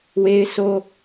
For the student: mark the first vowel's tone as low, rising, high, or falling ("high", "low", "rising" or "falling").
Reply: high